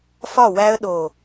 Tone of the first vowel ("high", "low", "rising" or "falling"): falling